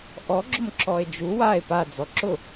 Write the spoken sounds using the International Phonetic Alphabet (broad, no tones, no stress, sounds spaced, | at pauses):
ʔ ɔ ɡ͡ǁ ʊ m ǁ ɔ e̯ d͡ʒ u w a e̯ p a d͡z ɔ ǁ ʊ